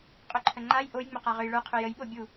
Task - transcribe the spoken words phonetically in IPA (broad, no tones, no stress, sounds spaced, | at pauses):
qʼ ɵ ǃʰ ə ŋ͡ǃ a j ʔ o j ŋ͡m ɘ q a ʁ ø j ɭ ə˞ qʰ ø j ə j ɓ o bʲ u